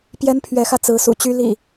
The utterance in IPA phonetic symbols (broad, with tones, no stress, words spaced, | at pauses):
pjɛ˦npʰɥɛ˨˦xä˧ t͡sɹ̩˨˦sṵ˨˩t͡ɕy˦ lḭ˨˩